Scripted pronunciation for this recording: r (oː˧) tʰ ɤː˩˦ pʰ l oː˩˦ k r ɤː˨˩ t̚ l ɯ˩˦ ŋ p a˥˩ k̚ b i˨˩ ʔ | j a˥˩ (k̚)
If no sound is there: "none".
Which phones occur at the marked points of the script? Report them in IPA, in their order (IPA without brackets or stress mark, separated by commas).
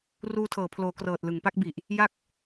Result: uː˧, k̚